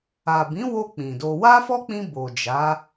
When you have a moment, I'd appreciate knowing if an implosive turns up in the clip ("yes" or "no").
no